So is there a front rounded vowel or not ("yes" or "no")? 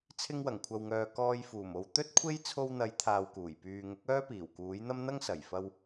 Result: yes